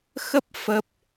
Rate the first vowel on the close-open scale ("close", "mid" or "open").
mid